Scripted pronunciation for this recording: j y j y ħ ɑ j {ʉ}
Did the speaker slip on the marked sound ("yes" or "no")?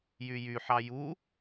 yes